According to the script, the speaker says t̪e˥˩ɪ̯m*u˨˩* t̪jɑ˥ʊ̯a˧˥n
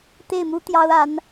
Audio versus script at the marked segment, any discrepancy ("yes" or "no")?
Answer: yes